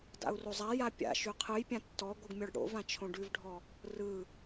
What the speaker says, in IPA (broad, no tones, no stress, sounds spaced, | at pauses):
d a̰ u̯ r o zˤ a j a pʲ a̰ ʃ ʉ qʰ ɯ j pʲ ã tː ɔ ɡʷ ɯ ɡ mʲ ɔ ɖ ɽ o̰ v ã t͡ʃʰ õ ɖ ʉ v ɖʱ ɔ | r ɯ